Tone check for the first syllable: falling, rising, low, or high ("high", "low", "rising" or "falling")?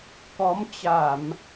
rising